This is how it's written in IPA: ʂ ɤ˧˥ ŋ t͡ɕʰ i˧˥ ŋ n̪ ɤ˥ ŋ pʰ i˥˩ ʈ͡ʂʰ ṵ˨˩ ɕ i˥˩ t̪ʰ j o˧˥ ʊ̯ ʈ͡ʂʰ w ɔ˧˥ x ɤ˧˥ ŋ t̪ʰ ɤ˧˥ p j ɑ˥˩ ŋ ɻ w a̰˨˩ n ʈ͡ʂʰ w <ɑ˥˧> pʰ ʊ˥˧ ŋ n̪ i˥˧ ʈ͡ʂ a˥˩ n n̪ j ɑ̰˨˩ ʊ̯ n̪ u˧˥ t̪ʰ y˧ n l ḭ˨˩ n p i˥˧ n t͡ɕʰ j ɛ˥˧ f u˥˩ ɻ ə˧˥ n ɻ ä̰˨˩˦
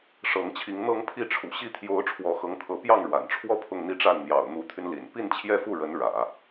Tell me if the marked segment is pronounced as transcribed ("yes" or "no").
no